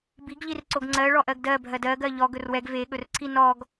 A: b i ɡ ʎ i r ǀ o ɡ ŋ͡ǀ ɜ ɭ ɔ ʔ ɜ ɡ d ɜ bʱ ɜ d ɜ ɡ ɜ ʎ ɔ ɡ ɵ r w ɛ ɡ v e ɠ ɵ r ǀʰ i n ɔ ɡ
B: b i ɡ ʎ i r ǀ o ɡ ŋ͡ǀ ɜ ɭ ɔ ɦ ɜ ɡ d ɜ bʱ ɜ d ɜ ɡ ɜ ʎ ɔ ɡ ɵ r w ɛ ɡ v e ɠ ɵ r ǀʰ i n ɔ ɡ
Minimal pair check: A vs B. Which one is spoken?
A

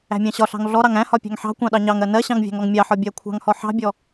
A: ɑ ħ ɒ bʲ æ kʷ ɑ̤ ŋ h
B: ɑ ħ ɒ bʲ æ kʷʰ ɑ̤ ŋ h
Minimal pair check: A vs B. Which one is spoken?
B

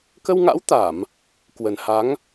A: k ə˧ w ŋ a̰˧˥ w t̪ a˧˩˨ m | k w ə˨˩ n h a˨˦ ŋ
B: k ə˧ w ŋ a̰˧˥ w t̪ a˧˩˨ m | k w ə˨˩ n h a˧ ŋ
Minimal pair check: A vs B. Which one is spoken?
A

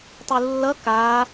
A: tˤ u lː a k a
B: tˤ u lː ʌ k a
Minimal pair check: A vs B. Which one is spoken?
B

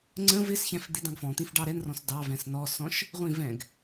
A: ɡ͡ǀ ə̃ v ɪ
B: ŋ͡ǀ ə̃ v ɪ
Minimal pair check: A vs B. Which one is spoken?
B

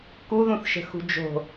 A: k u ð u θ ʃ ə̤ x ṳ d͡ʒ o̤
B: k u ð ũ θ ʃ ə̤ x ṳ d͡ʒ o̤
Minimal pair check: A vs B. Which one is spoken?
B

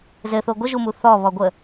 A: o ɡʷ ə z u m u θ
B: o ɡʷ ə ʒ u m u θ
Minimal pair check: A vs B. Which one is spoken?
B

